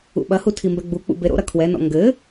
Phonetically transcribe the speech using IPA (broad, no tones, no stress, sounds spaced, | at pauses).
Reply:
ṵ ɓ ɐ h u tʰ i m b ɛ ɡ͡b u k͡p ṵ b e ɾ o̰ ɾ ɐ kʰ w ɛ n ɔ̰ ŋ ɡ ɘ